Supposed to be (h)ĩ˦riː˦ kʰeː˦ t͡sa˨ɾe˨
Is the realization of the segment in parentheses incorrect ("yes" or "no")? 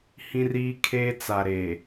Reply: no